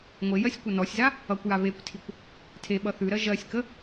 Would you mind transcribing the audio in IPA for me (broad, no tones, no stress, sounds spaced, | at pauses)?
ŋʷ e j ɜ sʲ kʷ ʌ n ɔ sʲ z a | ʌ kʷ j a β e kʷ tʰ i kʷ | tʰ e ɓ ʌ θ ʉ ɾ ɜ ʒ ɜ sʲ k ə